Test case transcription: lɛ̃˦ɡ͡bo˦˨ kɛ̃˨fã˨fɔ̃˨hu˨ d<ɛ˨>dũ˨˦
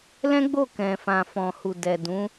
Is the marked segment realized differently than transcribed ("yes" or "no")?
no